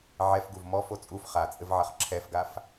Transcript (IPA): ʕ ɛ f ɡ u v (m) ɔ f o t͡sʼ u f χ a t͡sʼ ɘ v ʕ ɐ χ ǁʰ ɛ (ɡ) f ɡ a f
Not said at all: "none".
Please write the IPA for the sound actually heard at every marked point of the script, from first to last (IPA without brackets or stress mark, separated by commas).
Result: m, none